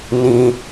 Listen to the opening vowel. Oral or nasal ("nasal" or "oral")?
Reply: nasal